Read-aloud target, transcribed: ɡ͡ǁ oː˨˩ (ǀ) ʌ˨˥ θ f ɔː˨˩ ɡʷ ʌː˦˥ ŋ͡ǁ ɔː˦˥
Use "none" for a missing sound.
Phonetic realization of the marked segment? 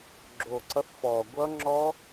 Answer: ǀ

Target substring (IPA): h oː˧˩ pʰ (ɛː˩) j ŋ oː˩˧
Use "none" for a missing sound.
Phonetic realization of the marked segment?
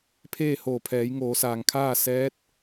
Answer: ɛː˩˧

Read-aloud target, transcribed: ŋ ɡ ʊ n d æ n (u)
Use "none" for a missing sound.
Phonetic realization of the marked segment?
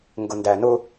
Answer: ʊ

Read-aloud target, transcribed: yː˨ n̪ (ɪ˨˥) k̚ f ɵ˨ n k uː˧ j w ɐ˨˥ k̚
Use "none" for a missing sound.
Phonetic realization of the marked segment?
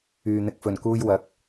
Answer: ɪ˨˥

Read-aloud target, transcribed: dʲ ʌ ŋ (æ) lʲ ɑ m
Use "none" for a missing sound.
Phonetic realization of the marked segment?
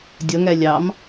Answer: æ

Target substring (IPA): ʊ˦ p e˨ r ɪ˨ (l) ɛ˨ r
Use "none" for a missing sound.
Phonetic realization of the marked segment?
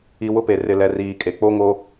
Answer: l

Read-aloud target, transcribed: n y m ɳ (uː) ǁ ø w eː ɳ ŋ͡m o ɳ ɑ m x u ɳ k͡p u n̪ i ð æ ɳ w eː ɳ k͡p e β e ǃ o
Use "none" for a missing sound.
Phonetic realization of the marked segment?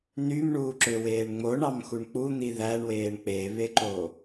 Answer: uː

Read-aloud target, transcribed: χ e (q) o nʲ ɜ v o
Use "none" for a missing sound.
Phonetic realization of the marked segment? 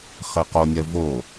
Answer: q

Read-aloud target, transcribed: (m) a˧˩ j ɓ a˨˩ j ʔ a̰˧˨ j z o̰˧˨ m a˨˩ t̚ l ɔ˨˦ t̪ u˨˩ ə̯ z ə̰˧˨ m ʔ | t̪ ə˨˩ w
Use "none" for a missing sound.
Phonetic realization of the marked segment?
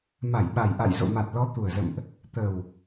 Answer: m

